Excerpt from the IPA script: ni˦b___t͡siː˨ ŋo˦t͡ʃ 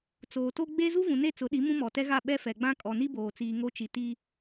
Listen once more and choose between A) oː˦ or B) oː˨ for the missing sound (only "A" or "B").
B